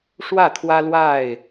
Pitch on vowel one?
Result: falling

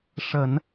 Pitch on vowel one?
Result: low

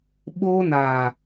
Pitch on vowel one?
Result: high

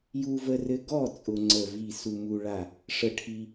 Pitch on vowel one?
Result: high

